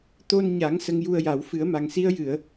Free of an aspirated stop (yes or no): yes